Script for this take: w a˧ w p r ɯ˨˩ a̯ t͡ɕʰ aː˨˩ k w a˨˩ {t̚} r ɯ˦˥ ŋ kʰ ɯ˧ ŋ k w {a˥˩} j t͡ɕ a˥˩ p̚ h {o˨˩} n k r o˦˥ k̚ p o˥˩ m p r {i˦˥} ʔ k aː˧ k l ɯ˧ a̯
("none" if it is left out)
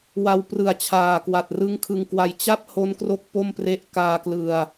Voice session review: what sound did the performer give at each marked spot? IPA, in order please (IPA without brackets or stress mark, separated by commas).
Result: t̚, a˧, o˦˥, e˦˥